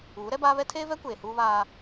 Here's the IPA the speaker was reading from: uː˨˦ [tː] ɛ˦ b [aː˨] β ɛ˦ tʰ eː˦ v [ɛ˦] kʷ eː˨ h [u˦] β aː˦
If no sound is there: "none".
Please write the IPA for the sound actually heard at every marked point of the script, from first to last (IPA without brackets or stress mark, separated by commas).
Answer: ɾ, aː˦, ɛ˦, uː˦